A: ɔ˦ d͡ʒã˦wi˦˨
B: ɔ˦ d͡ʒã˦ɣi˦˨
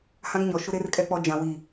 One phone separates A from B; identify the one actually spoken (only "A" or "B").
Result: A